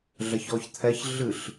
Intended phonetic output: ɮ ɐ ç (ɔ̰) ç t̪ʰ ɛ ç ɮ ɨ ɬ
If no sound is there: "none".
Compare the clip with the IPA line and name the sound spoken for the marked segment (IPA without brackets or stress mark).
ɔ